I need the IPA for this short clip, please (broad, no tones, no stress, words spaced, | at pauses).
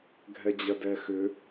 ɡʱɛd͡ʑɐdɛxʏ